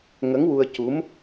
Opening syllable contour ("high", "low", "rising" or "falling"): rising